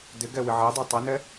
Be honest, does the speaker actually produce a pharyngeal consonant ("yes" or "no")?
yes